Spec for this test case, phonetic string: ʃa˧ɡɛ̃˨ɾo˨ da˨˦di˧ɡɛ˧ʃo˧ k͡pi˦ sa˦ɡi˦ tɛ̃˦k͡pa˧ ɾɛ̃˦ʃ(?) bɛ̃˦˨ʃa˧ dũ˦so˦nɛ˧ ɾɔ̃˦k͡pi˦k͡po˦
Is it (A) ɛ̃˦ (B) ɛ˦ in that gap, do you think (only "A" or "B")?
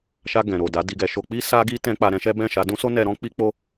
B